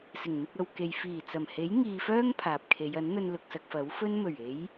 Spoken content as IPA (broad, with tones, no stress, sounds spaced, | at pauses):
s ɪ˨˩ ŋ n̪ ɪ˧ k̚ ɐ˨ w k e˨ j f iː˨˩ t͡s ɐ˨˩ m h e˨˥ j ŋ iː˧ f œː˥ ŋ pʰ aː˨ p̚ kʰ e˨˧ j ɐ˨˥ n n̪ ɵ˧ n l ʊ˧ k̚ s ɐ˧ k̚ f ɐ˨˥ w f ɵ˥ n m ɵ˨˩ ɥ e˨˧ j